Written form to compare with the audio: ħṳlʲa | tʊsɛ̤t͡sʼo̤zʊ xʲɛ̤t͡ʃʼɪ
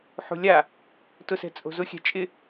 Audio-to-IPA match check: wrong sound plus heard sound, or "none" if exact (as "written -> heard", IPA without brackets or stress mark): none